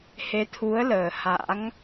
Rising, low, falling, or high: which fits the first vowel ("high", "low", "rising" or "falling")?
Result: rising